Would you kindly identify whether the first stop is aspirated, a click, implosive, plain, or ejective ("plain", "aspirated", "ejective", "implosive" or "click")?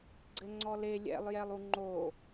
click